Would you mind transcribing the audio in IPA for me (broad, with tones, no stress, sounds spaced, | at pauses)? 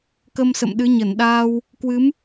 k ə˧ m s ə̰˧˨ m ɗ ɨ˨˦ ɲ ə˧˩ n ɗ aː˧ w | k w ɨ˨˦ m